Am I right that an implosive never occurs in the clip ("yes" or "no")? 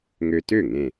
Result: yes